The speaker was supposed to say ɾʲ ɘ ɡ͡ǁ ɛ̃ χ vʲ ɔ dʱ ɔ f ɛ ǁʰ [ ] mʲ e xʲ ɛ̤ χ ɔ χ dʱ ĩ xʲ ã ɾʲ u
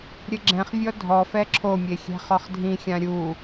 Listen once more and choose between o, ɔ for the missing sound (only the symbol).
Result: o